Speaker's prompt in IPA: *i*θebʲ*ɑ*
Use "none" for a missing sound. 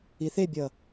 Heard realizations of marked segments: i, ʌ

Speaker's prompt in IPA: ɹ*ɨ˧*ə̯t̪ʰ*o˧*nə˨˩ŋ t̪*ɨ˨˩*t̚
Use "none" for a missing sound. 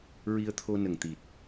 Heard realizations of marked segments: i˧, o˧, i˨˩

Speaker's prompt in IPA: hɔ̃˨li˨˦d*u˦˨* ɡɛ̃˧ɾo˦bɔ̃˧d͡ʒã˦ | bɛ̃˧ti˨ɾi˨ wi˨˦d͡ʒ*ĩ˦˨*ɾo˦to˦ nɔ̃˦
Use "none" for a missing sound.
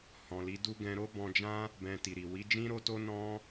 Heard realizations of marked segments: u˦, ĩ˦

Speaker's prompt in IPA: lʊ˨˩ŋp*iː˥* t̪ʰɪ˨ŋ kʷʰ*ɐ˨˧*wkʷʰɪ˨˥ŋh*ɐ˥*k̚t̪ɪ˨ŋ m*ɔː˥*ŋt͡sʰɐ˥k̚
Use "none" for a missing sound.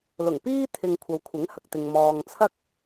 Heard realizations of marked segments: iː˥, ɐ˨˧, ɐ˨, ɔː˨

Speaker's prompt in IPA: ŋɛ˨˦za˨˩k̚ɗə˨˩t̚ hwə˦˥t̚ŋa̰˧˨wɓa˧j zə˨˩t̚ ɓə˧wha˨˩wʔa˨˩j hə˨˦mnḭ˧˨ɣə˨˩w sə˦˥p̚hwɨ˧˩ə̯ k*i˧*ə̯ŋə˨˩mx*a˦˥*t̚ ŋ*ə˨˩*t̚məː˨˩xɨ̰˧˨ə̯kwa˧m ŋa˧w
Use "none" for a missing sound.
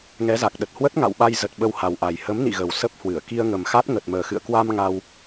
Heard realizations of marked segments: i˧, a˦˥, ə˨˩

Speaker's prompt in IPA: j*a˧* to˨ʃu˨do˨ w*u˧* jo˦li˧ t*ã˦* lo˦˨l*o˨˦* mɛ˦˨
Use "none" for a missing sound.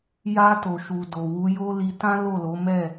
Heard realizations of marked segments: a˧, u˨˦, ã˦, o˨˦

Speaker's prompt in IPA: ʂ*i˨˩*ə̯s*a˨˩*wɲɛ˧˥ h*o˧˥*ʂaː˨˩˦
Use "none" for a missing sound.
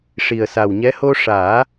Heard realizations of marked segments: i˨˩, a˨˩, o˧

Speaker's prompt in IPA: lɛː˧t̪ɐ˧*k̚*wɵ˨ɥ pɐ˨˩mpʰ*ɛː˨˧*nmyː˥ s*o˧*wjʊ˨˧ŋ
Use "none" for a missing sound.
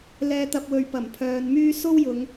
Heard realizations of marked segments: p̚, œː˨˧, o˥

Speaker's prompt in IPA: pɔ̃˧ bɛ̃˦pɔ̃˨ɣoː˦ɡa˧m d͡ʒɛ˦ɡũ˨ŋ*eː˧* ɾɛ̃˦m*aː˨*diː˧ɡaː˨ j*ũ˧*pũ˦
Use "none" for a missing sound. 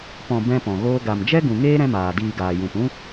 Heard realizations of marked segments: eː˦, aː˨, ũ˨

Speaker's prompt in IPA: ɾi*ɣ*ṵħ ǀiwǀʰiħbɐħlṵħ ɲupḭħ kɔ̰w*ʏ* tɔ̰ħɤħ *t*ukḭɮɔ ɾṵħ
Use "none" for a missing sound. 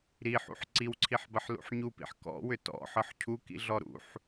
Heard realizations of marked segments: ħ, ʏ, cʰ

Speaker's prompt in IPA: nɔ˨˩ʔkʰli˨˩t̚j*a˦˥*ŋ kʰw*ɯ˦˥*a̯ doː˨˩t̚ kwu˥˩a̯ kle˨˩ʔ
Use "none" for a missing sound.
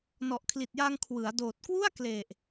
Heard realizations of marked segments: a˧, ɯ˩˦

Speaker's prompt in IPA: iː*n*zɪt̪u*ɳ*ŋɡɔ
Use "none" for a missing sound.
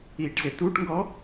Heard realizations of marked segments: ʈ, ʈ

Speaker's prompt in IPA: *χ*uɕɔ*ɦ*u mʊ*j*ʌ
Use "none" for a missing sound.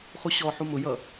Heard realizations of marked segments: χ, ħ, j

